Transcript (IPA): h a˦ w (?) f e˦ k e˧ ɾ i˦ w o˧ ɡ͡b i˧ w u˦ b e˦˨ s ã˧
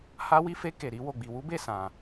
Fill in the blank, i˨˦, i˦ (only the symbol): i˦